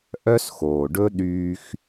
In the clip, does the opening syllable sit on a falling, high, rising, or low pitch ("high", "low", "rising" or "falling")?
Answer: high